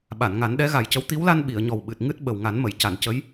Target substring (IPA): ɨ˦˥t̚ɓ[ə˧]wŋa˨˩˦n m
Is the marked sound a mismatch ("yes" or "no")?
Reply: yes